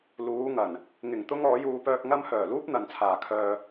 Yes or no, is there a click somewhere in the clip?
no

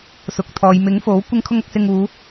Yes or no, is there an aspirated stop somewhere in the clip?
yes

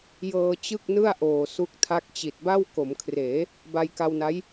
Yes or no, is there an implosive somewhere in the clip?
no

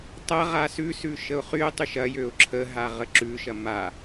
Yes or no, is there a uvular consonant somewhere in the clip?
yes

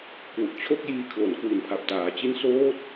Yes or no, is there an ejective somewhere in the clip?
no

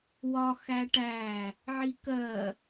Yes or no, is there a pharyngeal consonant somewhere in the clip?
yes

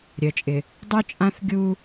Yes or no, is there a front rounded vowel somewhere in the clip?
yes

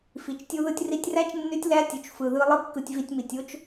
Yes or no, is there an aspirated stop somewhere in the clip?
no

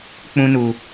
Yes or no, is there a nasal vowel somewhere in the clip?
yes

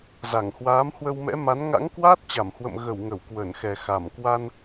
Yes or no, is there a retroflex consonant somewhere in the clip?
no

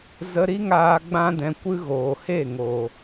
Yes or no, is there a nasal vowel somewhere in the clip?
yes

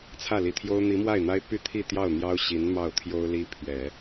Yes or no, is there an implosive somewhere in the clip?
no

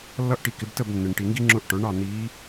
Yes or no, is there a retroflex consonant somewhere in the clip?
yes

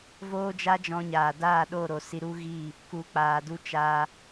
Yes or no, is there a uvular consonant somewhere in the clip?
no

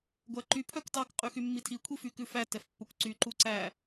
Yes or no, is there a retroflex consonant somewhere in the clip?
no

